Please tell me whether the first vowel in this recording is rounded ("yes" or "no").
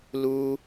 yes